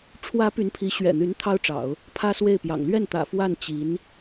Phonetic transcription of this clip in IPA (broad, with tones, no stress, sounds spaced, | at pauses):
ʈ͡ʂʰ w ä˧˥ p y˧˥ n pʰ i˧˥ ɕ ɥ ɛ̰˨˩ n̪ y˧˥ n t̪ʰ ɑ˥ ʊ̯ ʈ͡ʂ ɑ̰˨˩˦ ʊ̯ | pʰ ä˥ s w e˥˩ ɪ̯ p j ɑ̰˨˩ ŋ l ɥ ɛ˥˩ n t̪ ä̰˨˩ f w a˥˩ n t͡ɕ i˧˥ n